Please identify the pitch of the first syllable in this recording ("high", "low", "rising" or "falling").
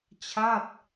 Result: falling